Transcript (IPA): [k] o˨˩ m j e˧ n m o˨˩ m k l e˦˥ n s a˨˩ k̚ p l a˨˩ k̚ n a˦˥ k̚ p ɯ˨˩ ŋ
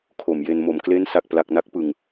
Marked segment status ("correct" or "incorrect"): incorrect